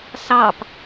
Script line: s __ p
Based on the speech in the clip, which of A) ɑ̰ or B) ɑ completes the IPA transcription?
B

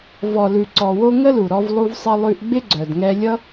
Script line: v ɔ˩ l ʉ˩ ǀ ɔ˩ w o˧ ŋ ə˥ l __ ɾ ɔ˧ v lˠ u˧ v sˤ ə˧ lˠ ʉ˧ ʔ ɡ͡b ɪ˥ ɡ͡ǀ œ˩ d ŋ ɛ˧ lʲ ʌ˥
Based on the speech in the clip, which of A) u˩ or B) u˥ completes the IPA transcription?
A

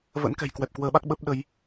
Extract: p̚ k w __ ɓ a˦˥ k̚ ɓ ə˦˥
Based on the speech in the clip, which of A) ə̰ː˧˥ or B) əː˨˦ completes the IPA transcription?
B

